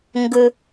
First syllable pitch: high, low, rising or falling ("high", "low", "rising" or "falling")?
low